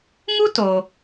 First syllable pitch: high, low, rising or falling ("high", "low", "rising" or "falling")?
high